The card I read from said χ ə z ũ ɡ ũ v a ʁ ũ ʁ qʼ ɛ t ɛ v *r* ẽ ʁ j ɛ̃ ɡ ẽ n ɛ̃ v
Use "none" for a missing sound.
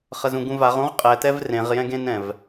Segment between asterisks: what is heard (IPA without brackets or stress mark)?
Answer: r